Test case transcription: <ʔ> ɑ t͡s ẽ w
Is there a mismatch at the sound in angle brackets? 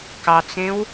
yes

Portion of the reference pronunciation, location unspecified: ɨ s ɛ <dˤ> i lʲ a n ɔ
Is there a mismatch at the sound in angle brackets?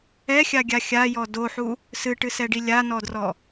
yes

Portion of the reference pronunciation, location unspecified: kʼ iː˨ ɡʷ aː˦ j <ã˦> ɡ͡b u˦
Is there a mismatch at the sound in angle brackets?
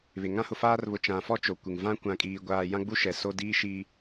no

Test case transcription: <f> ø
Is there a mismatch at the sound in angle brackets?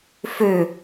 no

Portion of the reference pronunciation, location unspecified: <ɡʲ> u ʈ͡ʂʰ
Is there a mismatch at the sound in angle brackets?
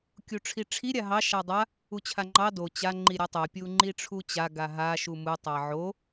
yes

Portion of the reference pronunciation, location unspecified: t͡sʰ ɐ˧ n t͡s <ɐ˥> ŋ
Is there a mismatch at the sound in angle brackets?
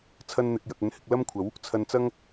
no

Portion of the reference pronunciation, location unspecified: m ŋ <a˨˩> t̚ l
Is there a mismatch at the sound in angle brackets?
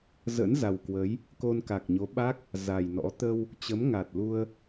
no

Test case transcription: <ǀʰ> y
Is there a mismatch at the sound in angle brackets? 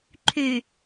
yes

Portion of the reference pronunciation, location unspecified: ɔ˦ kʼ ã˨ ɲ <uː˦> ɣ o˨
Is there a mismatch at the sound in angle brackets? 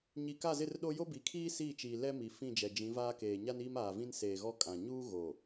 no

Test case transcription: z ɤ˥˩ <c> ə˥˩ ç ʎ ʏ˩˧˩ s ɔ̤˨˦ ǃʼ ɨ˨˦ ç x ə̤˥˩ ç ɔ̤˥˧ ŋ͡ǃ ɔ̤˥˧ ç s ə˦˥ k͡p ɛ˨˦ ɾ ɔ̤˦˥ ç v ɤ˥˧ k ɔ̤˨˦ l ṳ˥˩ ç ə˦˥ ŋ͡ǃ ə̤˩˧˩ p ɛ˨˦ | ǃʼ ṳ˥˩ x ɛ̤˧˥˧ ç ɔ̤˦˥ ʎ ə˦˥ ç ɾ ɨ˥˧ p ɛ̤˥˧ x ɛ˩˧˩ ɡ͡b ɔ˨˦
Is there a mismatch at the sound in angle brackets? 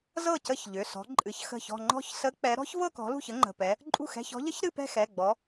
no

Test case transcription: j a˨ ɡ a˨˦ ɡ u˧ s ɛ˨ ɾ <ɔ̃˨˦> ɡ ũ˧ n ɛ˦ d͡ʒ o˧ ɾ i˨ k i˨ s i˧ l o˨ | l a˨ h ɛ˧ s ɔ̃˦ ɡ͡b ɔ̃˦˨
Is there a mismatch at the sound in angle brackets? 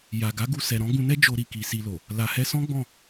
no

